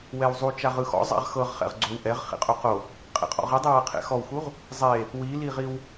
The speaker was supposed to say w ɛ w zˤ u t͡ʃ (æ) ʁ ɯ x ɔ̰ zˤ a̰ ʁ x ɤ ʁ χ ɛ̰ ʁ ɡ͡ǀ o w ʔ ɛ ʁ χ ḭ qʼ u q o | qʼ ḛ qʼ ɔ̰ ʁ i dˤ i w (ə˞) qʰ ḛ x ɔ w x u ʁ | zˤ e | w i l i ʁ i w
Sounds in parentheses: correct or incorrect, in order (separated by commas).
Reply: incorrect, incorrect